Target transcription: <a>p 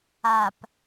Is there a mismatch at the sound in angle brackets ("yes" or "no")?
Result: no